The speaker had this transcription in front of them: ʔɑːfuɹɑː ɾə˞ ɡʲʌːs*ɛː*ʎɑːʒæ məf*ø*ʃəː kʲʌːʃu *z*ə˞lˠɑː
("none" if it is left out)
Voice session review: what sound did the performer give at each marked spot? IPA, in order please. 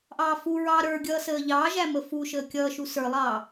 əː, u, s

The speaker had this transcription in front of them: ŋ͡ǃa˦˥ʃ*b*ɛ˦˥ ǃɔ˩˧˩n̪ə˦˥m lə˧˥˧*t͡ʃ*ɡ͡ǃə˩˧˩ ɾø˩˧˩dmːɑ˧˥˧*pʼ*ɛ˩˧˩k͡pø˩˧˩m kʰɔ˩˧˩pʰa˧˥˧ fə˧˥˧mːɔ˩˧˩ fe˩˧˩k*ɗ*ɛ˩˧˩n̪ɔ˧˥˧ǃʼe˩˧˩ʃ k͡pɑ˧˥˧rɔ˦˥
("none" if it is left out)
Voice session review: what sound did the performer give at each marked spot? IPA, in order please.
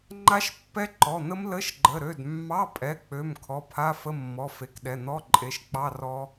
pː, ʃ, pʼ, ɗ

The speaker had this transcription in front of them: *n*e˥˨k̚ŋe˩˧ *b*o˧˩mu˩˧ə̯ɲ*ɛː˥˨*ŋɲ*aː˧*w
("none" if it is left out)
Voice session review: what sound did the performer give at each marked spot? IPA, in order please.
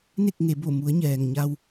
n, b, ɛː˩, a˧

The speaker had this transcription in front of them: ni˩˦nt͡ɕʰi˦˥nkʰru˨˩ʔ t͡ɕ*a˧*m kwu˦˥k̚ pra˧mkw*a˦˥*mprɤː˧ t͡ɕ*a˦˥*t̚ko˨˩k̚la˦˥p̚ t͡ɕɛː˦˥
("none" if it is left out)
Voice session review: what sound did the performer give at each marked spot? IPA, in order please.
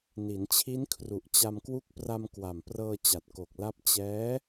a˧, a˨˩, a˨˩

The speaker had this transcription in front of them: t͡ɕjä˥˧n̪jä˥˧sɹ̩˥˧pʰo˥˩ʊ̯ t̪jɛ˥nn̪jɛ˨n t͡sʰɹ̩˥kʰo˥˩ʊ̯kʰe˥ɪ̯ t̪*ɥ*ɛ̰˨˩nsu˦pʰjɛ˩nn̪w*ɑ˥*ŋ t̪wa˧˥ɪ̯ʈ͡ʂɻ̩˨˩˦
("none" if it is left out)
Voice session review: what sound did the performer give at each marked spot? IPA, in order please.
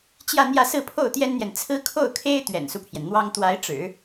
ɥ, ɑ˥

